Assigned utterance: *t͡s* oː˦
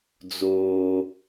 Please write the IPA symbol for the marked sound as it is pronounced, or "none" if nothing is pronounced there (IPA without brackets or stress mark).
d͡z